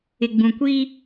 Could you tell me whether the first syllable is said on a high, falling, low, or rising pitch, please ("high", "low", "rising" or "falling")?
low